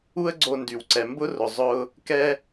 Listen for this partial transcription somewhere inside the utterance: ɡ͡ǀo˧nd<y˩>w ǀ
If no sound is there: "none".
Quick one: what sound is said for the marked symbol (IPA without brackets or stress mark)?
y˩